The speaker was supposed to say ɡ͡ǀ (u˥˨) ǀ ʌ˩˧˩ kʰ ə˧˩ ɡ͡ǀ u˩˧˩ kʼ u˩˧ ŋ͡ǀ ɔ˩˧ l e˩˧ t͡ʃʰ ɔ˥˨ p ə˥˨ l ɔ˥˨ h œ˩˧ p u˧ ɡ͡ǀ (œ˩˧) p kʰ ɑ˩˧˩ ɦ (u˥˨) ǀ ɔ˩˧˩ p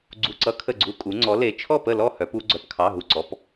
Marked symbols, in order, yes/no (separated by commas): no, yes, no